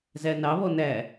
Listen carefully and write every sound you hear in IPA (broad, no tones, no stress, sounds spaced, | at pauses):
z æ n ɑ β ɔ n æ